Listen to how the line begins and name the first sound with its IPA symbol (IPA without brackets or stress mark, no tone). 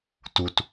t